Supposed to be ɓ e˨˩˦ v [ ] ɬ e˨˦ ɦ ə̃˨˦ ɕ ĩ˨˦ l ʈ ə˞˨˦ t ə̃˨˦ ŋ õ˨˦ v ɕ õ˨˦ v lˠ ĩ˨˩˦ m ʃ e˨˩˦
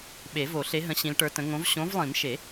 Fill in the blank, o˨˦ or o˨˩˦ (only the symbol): o˨˩˦